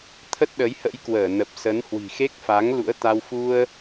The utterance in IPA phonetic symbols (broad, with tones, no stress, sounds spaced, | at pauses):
t̪ʰ ə˦˥ t̚ ɗ ə˨˦ j h ə̰˧˥ j k w əː˧˩ n ə˨˩ p̚ s ə˨˦ n h w i̤˨˩ x e˦˥ k̚ f a˨˦ ŋ l ṵ˧˥ ə̯ t̪ a˧ w f u˧ ə̯